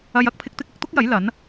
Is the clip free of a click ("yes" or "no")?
yes